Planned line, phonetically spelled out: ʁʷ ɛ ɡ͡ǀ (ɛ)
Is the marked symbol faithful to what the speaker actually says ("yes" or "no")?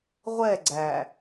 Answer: no